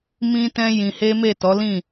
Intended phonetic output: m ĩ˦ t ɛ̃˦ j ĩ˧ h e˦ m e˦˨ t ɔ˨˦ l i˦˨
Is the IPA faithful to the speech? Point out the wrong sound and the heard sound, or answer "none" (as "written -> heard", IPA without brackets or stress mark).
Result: i˦˨ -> ĩ˦˨